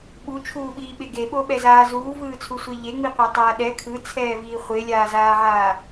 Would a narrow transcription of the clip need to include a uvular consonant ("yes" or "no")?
yes